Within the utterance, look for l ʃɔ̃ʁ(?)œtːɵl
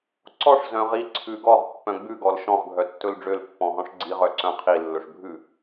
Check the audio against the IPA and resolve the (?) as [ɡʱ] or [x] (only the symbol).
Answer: ɡʱ